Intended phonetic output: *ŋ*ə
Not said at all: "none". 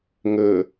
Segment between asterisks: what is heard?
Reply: ŋ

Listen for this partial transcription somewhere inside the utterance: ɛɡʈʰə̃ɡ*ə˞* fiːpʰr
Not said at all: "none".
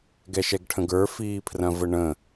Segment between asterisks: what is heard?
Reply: ə˞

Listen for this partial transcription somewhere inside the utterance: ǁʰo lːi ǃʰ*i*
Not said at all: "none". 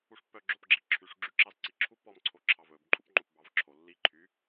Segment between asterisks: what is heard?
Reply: y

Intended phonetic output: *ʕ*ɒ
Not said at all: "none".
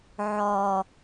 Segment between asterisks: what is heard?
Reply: ʕ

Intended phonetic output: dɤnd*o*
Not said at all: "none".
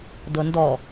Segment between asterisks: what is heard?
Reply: ɔ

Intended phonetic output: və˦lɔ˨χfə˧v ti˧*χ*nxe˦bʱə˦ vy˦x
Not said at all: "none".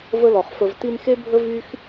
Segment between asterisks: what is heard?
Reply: none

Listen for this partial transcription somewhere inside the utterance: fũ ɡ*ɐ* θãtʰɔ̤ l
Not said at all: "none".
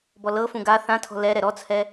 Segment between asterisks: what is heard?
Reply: a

